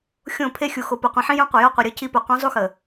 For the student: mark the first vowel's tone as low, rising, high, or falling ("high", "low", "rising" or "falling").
falling